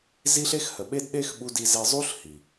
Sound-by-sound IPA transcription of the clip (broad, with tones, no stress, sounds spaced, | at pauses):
z i˦ ɬ e˦ x h ə˨ ɓ e˦ d ɗ e˦ x ɓ u˧ d i˧ z e˧ zˤ u˦ ɬ h i˨